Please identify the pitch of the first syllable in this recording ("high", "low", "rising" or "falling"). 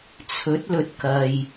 rising